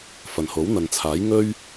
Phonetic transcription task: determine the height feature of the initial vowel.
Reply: low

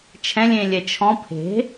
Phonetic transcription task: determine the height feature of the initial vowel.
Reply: mid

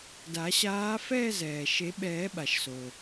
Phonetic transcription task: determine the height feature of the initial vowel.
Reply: low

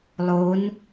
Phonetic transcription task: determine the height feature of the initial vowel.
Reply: mid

